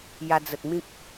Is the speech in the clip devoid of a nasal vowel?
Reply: no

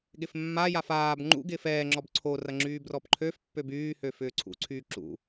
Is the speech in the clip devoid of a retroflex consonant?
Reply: yes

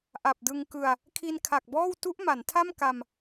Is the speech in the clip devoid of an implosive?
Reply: yes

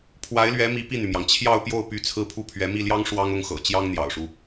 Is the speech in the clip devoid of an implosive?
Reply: yes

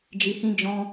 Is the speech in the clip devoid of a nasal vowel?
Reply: no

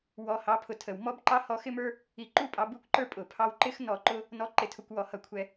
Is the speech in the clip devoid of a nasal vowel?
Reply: yes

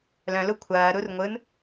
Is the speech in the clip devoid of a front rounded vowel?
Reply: no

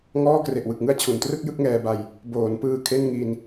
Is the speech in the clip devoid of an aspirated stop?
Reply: no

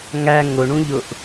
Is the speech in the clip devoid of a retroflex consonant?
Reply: no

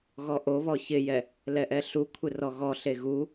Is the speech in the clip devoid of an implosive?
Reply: yes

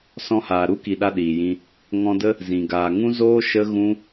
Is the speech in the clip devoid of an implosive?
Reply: no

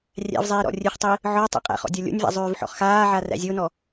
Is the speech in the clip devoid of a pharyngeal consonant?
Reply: no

